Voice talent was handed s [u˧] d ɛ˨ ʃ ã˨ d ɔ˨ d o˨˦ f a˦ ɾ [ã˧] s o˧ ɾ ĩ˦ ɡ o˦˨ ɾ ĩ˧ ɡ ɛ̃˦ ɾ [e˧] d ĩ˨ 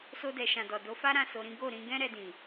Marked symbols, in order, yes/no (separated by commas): no, no, no